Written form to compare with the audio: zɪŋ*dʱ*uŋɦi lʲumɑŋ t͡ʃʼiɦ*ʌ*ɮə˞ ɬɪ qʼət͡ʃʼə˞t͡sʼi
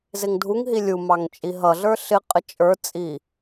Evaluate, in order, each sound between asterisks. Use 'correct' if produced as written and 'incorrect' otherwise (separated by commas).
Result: correct, correct